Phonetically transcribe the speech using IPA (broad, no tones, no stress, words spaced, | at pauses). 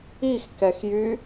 ixkɛxjy